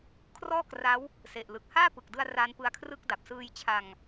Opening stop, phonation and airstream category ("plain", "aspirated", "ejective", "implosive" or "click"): aspirated